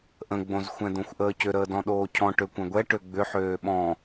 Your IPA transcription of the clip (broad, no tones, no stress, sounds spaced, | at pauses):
ʔ ə̃ ɡ͡b õ z xʷ ɛ̃ d̪ õ xʷ ʔ əː c ʏ ɾ əː d ɔ̃ ɗ oː cʰ ɔ̃ ʈ ø kʷ ɛ̃ ɡʷ ɛ ʈ ø ɡ͡b ʏ ħ øː ɓ ɔ̃